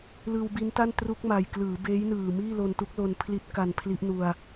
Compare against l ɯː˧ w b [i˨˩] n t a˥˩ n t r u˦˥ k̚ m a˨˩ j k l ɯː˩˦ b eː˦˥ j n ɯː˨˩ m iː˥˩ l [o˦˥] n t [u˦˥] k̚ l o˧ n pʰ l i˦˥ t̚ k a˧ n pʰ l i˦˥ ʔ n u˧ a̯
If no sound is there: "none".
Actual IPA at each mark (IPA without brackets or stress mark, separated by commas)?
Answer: i˦˥, o˧, u˦˥